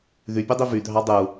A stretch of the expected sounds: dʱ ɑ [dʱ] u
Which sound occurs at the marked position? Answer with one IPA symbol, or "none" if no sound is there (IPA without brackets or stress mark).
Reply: dˤ